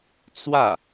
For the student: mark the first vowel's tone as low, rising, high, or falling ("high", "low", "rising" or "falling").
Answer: falling